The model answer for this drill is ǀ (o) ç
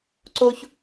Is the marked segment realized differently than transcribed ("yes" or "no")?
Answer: no